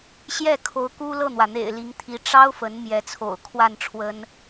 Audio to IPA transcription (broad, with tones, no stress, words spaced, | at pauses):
ɕjɛ˥˩kʰo˧˥ʊ̯ ku˥lɤ˥˩n̪wä˩n̪ḛ˨˩ɪ̯ li˧˥ŋt̪ʰi˧˥ ʈ͡ʂɑ˥ʊ̯ fə˧˥n mjɛ˧˥t͡sʰo̰˨˩ʊ̯ kʰwa˥˩nʈ͡ʂʰwə˥n